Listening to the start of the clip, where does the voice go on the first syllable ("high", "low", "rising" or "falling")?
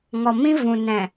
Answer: low